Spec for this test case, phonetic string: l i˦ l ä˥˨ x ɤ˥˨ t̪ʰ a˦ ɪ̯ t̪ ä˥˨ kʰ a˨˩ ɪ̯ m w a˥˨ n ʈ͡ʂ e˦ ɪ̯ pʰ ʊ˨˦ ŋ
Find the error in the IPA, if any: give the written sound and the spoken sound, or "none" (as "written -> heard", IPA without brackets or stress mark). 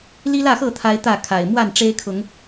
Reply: pʰ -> kʰ